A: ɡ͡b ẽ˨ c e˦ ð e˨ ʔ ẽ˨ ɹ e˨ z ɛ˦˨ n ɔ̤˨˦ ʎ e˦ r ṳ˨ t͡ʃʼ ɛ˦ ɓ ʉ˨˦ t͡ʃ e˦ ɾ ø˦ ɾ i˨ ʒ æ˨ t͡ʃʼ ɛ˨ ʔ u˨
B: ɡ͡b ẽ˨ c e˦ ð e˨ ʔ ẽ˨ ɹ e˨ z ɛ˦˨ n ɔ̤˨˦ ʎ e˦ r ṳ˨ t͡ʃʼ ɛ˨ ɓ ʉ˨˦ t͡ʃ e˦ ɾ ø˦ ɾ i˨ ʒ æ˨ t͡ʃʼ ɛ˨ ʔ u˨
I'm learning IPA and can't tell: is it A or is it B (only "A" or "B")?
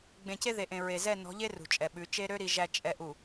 B